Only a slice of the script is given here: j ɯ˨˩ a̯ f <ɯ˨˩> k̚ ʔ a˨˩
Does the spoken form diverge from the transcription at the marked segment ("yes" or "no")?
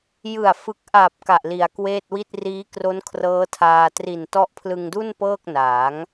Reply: no